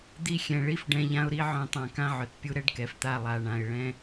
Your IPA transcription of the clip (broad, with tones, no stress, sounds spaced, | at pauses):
d̪ i˧ xʲ ɛ̃˨ ɭ i˦ f ɖ ɛ̃˧ ʎ ã˦ ʊ̯ ɾ i˦ ʕ œ̃˦˨ tˤ ã˧ k ã˦ ʕ œ˨ t pʲ u˦ ɾ ɛ˦ ɖ k ɛ˨ f t̪ a˦˨ lˠ a˧ ɳ ã˧ ɪ̯ ɭ ɛ̃˦